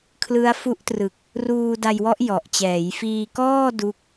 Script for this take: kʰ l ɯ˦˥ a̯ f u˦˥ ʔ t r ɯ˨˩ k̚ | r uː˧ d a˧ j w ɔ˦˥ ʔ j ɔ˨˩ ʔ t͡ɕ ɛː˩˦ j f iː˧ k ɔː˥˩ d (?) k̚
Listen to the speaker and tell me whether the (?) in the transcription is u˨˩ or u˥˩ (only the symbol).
u˥˩